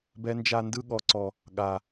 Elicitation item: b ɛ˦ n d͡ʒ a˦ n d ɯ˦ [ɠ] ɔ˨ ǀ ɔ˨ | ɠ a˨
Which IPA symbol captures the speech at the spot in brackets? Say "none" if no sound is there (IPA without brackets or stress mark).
ɠ